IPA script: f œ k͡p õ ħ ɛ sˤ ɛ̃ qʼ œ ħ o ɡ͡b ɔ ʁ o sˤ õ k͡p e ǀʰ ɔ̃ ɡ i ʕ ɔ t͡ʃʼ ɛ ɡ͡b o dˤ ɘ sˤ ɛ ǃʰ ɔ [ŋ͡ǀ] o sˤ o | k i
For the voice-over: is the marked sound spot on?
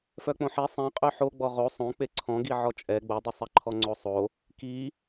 yes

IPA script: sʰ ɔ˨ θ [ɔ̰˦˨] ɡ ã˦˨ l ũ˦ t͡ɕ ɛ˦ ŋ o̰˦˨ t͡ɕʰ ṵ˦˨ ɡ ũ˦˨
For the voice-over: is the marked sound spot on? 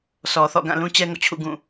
yes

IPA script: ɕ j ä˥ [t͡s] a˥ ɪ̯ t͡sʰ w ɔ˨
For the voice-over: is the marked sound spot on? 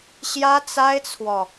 yes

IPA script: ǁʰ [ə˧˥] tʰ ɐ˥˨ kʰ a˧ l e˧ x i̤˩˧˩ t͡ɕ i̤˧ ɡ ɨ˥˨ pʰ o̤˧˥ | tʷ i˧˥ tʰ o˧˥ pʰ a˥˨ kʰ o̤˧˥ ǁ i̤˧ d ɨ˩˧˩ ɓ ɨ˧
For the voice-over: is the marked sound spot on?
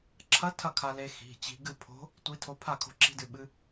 no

